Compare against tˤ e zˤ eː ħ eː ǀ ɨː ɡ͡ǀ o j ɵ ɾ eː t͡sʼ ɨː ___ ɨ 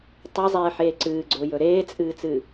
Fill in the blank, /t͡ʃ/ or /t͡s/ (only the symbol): t͡s